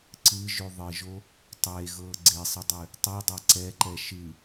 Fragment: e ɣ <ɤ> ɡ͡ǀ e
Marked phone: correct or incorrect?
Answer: correct